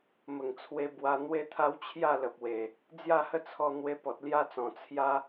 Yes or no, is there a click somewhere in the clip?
no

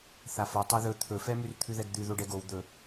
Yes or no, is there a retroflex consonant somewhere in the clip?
yes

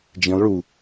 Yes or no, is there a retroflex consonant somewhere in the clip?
yes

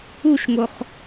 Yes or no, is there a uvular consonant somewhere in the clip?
yes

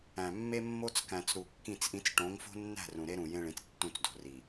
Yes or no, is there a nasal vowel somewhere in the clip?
yes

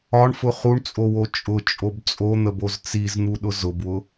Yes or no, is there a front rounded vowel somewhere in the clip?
no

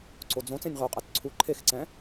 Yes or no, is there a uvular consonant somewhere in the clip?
yes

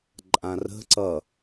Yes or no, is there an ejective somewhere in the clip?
yes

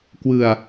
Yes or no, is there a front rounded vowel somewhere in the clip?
no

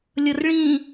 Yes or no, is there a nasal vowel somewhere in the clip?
yes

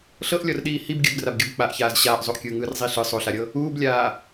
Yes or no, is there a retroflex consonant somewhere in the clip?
no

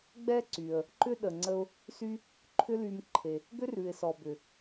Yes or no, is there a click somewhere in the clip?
yes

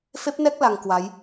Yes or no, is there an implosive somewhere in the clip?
no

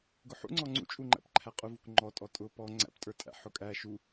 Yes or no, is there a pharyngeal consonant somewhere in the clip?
yes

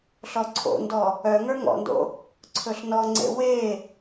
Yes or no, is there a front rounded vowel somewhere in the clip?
yes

